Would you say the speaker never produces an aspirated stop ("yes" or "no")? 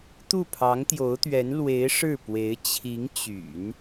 no